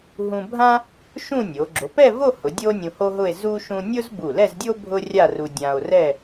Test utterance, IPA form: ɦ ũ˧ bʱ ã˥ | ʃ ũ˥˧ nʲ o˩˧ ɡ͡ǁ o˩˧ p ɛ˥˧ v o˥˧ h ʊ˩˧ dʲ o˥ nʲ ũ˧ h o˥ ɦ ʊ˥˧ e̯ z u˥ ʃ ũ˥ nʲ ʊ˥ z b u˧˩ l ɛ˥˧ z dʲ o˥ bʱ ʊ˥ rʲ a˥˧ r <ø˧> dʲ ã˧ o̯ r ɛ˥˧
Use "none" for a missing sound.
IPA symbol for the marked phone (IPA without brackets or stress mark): u˧